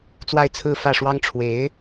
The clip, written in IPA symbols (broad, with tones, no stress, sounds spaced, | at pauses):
t͡s w a˥˩ ɪ̯ t͡sʰ ɹ̩˥ f ä˥˩ ʂ w ɑ˥ ŋ ʈ͡ʂʰ w e˧˥ ɪ̯